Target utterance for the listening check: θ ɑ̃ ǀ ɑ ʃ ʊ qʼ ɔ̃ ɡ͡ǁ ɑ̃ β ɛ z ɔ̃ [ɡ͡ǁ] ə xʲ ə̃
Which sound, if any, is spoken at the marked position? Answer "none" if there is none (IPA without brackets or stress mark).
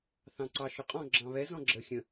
ɡ͡ǁ